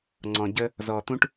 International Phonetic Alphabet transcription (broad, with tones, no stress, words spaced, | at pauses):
ŋ͡ǀɔ̃˨ɟə˦ | zɔ˨t̪ũ˦ʈ